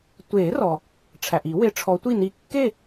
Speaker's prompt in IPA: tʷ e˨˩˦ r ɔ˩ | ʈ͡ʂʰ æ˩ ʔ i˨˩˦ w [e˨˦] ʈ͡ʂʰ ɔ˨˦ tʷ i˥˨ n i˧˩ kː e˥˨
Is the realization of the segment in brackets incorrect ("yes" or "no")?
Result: no